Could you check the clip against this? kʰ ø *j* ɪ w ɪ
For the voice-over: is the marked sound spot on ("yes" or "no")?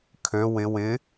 no